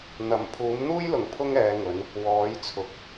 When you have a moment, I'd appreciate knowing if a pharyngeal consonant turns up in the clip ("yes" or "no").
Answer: no